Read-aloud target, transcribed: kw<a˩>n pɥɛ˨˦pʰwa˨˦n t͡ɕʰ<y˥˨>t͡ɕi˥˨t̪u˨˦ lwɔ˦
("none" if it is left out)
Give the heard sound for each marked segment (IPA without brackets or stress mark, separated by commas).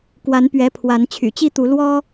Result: a˨˦, y̰˨˩